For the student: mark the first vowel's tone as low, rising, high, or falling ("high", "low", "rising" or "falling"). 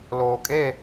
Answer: low